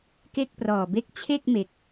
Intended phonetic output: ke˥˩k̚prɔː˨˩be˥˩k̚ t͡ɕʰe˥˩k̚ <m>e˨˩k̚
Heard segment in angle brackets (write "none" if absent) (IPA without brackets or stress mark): m